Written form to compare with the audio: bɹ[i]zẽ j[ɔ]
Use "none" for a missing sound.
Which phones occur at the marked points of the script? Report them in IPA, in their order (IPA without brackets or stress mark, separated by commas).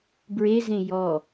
e, ɔ